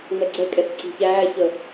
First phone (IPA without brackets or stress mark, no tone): ŋ͡m